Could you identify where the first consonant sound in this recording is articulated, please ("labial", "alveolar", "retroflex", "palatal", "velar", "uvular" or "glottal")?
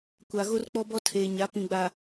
velar